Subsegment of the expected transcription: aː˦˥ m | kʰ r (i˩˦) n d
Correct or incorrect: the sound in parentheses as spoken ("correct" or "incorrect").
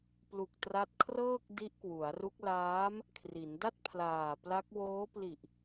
correct